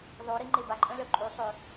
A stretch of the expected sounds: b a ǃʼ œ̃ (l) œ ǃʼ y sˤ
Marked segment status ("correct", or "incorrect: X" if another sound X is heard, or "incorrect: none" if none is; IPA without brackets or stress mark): correct